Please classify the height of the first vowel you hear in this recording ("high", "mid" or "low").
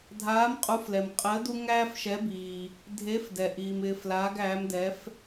low